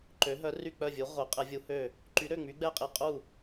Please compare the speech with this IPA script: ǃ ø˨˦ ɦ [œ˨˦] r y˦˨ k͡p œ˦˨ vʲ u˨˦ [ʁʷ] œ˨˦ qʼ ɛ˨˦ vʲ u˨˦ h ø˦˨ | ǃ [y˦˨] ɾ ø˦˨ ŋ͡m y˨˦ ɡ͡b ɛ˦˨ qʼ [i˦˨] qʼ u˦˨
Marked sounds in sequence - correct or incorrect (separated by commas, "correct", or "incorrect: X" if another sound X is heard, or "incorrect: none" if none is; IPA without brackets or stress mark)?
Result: correct, correct, incorrect: y˨˦, correct